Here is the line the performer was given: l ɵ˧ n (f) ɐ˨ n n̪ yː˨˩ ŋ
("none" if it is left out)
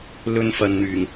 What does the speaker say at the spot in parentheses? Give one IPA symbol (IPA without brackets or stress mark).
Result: f